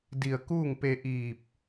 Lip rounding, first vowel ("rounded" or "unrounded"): unrounded